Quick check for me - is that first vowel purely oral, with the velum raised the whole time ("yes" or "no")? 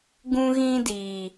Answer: no